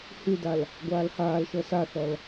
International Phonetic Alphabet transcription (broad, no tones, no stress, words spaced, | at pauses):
hydal | ɡʷaːlhaːlʃɤ saθɔl